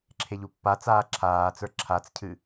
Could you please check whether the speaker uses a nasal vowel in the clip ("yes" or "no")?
no